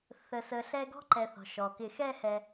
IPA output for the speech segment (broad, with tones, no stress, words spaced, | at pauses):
θə˨sə˨ ɬɛ˦ɡɔ̤˥ǃɛ˨ θɔ̤˩ʃɔ˩ kɪ˨xɛː˦hɛ˨